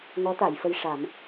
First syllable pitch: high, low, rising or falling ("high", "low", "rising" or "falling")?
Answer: rising